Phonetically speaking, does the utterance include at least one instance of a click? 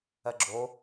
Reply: yes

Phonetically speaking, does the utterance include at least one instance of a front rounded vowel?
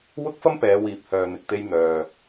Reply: yes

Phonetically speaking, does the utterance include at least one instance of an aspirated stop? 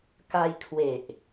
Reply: yes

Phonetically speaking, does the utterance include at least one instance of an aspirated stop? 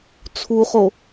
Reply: yes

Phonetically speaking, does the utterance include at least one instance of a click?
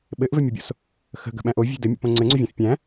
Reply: yes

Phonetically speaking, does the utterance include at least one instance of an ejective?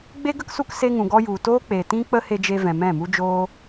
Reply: no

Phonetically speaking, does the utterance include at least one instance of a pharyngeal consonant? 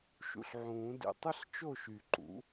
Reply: yes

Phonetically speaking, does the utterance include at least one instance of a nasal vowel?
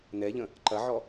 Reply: yes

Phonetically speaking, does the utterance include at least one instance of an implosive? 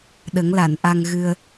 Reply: yes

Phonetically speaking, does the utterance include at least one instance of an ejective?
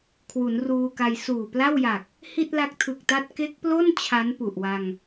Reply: no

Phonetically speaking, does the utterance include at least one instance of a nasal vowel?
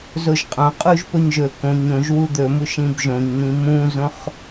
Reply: yes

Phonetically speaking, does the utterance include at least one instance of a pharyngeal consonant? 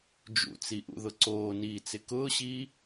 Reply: no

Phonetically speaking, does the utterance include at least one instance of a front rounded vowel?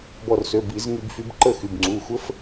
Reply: yes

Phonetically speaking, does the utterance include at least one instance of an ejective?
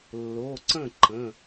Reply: no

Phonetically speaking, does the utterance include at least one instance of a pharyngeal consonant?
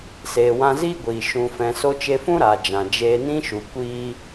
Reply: no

